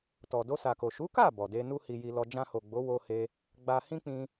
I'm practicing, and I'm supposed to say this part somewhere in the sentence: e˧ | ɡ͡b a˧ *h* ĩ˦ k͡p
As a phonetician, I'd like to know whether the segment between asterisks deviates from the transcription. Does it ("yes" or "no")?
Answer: no